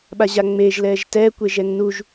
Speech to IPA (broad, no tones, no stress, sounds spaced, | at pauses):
ɓ a ʑ a ŋ͡m e ʒ l ɛ ʒ t ɛ kʷ e ʒ ɛ ŋ n u ʒ